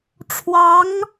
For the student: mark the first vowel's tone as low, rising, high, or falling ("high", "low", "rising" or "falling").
rising